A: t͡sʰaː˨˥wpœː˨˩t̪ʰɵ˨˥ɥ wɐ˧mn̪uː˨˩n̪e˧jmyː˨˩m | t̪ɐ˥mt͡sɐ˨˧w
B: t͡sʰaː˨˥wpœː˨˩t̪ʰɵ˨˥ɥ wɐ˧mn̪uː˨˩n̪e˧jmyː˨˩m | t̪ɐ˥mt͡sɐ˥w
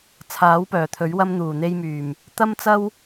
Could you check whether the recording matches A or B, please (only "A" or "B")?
B